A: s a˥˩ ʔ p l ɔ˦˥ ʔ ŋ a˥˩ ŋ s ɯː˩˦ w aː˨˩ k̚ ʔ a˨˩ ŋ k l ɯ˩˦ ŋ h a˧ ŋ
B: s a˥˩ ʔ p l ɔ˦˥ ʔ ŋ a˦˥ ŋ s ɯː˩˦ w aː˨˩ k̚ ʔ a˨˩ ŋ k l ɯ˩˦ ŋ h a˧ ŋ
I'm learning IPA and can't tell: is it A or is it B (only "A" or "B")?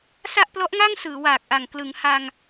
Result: A